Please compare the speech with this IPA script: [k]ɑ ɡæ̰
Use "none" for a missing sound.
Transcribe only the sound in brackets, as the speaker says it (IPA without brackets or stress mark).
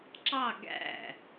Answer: ǁ